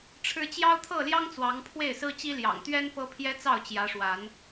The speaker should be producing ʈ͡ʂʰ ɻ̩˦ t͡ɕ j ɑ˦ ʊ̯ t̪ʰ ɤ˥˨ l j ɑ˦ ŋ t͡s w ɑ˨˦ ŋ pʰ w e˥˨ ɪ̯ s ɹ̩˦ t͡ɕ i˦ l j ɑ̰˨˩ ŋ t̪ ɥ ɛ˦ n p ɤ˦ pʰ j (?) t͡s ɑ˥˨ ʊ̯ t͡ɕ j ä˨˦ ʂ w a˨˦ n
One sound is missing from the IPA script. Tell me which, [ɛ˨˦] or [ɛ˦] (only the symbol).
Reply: ɛ˦